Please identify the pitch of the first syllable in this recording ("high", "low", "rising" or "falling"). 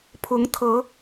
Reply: rising